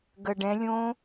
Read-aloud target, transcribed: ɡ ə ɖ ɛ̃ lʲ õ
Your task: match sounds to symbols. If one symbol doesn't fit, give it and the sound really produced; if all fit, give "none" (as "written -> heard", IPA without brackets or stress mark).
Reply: none